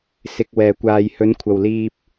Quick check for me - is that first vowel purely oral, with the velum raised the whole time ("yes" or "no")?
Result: yes